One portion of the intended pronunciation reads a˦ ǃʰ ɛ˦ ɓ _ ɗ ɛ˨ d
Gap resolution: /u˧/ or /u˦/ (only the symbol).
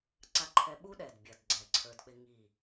u˦